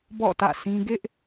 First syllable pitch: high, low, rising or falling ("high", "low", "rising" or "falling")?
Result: falling